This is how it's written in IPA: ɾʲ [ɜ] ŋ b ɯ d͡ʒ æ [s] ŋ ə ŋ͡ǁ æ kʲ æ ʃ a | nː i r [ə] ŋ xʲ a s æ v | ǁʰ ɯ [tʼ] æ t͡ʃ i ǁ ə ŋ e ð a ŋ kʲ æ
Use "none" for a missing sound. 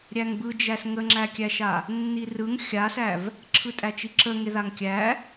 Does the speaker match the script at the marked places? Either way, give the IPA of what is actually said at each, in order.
æ, s, ɯ, tʼ

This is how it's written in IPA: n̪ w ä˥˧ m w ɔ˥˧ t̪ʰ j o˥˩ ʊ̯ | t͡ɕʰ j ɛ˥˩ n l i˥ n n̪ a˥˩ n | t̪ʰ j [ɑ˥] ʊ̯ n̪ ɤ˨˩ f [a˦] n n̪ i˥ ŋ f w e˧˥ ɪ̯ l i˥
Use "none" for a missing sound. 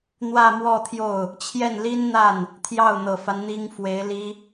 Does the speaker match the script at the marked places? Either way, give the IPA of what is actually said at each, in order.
ɑ˥˩, a˦

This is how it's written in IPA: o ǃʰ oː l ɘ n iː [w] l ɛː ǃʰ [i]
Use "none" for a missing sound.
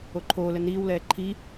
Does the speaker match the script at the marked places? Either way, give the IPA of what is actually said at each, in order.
w, i

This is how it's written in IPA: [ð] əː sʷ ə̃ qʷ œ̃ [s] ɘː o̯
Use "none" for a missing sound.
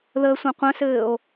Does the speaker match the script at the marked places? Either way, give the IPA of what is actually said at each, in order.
ð, s

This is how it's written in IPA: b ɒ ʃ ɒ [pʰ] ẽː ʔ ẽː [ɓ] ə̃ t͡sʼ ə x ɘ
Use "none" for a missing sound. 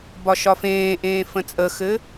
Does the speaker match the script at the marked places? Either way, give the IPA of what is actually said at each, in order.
f, f

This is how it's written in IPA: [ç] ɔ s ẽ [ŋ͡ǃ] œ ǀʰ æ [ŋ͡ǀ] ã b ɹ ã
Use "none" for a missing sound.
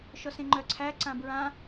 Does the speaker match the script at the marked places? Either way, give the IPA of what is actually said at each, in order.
ʃ, ŋ͡ǃ, ǀ

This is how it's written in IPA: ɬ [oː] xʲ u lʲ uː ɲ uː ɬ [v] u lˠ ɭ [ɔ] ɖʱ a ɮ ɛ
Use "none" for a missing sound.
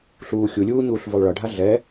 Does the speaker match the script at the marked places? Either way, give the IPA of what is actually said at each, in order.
uː, v, ʌ

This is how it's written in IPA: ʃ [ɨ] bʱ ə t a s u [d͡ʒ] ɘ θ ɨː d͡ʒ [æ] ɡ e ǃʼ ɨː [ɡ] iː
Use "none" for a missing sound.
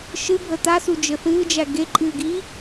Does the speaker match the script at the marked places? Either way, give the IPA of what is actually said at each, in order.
ɨ, d͡ʒ, æ, ɡ

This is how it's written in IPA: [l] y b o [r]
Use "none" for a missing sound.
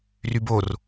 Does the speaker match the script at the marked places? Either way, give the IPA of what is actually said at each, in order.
r, r

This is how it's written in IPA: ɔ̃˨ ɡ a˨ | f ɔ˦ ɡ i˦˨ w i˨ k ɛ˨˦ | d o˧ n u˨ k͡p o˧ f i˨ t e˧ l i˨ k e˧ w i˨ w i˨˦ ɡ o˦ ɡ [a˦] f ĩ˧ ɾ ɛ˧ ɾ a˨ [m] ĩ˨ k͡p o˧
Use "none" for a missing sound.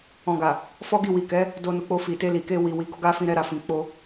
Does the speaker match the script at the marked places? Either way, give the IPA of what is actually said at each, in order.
a˦, f

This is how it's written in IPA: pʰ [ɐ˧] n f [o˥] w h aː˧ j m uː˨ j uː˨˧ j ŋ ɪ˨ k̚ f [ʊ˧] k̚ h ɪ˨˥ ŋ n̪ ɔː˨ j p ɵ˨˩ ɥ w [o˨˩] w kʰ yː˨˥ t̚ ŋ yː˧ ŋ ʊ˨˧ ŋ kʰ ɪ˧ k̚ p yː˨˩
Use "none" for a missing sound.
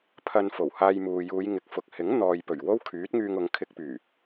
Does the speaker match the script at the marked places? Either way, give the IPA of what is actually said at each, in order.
ɐ˧, o˨˩, ʊ˨, o˥

